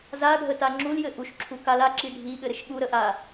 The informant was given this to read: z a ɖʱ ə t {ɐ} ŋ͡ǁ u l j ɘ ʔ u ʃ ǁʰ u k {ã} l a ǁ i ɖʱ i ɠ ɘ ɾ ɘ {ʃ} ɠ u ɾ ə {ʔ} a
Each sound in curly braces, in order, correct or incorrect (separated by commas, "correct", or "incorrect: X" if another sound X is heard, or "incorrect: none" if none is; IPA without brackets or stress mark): incorrect: a, incorrect: a, correct, correct